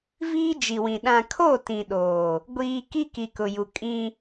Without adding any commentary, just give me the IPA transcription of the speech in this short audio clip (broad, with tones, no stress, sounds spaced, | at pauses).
v iː˦ d͡ʒ i˨ w ĩ˨ ɗ ã˨ kʰ o˦˨ t ĩ˨ ɗ oː˨ | ɡʷ iː˨ k i˦ k i˨ k ʊ˨ j u˨ kʼ ĩ˦